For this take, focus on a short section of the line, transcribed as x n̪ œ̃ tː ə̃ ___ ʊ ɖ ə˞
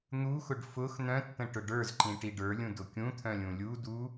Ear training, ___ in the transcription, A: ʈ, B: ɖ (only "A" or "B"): A